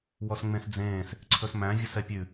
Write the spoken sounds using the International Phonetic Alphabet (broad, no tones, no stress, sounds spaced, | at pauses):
w ɔ s ŋ͡m ẽ s d͡z ẽː s | ǀʰ ɵ s m æ̃ vʲ ɵ s ɛ pʲ ʉ